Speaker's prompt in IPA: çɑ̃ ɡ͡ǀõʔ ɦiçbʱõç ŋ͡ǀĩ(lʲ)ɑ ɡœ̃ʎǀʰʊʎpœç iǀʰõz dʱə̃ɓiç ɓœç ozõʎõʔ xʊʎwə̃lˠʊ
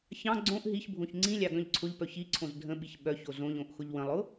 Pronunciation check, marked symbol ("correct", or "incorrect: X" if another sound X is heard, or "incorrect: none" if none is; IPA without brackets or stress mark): correct